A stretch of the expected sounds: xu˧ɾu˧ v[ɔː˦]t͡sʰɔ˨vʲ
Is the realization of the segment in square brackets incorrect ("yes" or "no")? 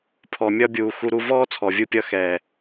no